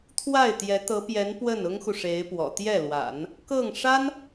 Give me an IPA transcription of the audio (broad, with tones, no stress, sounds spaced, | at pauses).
t̪ʰ w a˥˩ ɪ̯ t̪ j ɛ˧˥ t̪ ɤ˧˥ p j ɛ˧˥ n p w ə˥˩ n ʊ˥ ŋ x u˨ ʂ e˧˥ ɪ̯ p w ɔ̰˨˩ t̪ j ɛ˥˩ l w a̰˨˩˦ n | k ɤ˥˩ ŋ ʂ a˥ n